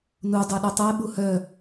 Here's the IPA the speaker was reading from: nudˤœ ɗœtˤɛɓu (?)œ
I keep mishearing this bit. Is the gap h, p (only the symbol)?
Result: h